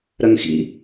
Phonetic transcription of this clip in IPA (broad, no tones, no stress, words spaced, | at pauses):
ɾɐŋxḭ